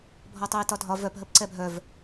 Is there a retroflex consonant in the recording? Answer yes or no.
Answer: no